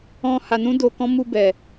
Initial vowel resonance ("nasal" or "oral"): nasal